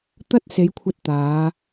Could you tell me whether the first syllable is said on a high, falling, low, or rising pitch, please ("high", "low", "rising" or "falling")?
high